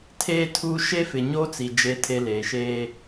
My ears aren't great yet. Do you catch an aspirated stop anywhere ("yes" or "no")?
yes